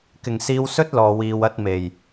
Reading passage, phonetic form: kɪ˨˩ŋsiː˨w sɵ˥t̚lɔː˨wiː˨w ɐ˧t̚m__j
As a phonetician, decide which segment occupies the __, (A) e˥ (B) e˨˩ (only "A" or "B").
B